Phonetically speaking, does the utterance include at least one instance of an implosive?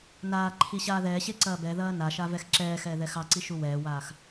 no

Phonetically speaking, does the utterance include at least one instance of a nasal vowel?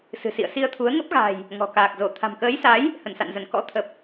no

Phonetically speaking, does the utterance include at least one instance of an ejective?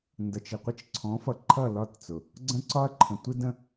no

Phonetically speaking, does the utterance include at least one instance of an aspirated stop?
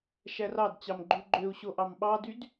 no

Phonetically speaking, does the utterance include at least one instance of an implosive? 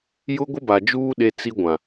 yes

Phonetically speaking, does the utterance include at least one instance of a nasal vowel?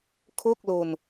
no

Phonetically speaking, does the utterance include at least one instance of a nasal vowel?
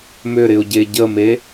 no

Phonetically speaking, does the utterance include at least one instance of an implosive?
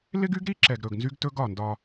no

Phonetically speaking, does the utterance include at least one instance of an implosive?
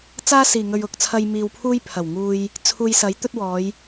no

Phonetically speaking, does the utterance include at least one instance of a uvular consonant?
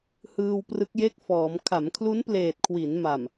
no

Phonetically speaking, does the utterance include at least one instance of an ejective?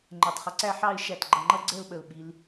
no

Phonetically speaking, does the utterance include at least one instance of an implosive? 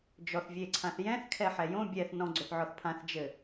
no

